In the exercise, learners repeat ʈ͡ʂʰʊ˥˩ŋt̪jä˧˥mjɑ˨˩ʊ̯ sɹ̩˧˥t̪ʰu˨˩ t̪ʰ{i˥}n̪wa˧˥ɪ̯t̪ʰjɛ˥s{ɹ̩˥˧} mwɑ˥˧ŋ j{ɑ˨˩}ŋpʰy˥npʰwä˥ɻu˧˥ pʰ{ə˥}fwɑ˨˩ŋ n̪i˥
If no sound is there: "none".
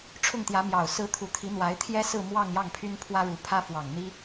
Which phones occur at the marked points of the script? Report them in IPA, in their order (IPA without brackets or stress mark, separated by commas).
i˧˥, ɹ̩˥˧, ɑ˥˩, ä˥